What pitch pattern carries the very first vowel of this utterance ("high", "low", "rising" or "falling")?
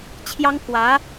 high